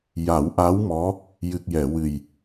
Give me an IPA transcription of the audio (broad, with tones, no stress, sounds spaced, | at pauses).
j a˨˩˦ w ʔ a˧˥ w m ɔ˧˥ | j ɨ˨˩ k̚ j ɛ˨˩˨ w ɨ˨˩ j